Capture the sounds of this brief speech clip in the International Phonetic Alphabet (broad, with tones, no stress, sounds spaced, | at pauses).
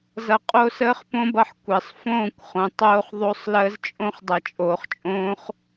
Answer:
z ʌ˧ qʼ o˦ s əː˦ χ p õ˦ b ʌ˧ ħ kʷ əː˨ sˤ f õː˦˨ kʷ χ õ˨ tˤ oː˧ χ ðˤ o˧ sˤ l əː˧ z t͡ʃʼ õ˧ χ dˤ ʌ˨ t͡ʃʼ oː˨ χ t͡ʃʼ õː˦ χ